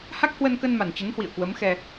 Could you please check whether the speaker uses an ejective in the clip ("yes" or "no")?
no